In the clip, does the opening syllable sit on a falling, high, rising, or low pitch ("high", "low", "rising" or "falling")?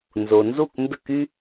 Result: low